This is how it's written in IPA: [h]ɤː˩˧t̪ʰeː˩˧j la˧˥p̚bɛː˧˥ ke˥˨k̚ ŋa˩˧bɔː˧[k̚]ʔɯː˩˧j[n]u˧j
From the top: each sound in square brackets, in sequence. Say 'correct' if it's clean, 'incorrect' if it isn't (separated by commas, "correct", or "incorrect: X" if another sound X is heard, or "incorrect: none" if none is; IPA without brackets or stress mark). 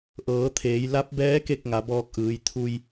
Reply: incorrect: ʔ, correct, incorrect: t̪ʰ